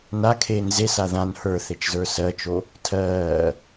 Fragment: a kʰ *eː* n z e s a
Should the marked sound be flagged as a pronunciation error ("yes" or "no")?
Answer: no